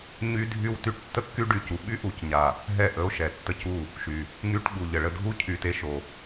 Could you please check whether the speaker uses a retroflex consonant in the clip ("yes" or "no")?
yes